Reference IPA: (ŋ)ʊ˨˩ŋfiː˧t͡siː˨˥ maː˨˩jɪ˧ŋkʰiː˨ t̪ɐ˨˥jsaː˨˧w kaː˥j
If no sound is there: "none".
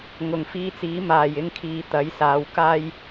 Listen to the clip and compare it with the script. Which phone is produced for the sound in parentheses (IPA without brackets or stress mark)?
ŋ